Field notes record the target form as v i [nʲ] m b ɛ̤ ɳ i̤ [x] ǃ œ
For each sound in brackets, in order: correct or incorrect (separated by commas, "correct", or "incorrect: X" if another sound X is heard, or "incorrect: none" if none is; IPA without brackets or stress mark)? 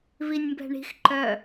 correct, correct